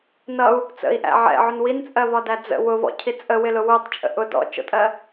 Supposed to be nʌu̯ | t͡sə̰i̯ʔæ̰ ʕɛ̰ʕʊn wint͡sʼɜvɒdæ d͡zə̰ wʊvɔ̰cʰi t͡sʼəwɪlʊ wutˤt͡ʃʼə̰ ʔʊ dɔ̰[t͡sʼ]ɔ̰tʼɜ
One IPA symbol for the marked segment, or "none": t͡ʃ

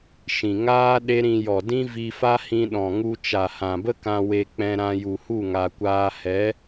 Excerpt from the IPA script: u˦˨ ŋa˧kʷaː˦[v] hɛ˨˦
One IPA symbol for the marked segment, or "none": none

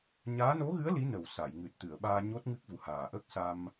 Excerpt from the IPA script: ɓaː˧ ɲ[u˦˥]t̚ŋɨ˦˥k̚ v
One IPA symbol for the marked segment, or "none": o˦˥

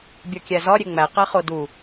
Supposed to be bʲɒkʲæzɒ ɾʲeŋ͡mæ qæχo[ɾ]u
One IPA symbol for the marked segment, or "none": d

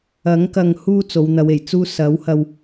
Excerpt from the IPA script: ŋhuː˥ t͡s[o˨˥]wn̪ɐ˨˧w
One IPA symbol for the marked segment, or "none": o˨˧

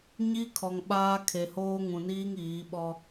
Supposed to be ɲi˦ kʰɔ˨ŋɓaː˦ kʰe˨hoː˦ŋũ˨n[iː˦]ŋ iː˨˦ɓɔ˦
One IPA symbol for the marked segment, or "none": iː˦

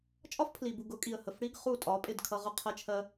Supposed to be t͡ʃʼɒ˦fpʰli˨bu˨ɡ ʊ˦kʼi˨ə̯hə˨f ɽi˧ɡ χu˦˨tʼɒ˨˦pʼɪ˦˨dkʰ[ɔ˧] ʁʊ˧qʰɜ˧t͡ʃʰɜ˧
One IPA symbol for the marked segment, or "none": ʌ˧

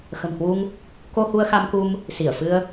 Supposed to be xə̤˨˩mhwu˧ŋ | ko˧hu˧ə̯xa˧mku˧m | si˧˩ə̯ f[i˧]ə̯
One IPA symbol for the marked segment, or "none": ɨ˧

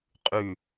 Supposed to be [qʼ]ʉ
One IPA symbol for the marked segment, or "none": qʼ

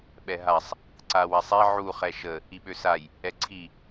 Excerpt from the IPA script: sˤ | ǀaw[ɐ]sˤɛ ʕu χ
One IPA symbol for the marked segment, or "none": a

